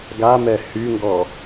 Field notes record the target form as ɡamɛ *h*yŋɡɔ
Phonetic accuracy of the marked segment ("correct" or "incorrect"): correct